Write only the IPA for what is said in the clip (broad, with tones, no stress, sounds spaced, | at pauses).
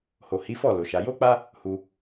h o˨ h i˨˦ f ɔ˦˨ l o˨ ʃ a˨˦ j o˦ k͡p a˦ | h u˧